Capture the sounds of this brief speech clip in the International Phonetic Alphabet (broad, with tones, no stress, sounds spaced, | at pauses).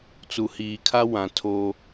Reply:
t͡s u˨ h iː˨ kʰ a˦ w ã˨ tʰ o˦